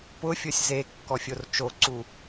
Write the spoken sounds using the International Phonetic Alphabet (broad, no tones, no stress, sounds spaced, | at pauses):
p ʊ fʲ o sʲ z e kː ɔ fʲ o r t͡ʃ o ǀ u